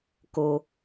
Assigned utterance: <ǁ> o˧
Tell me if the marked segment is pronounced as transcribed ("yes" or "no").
no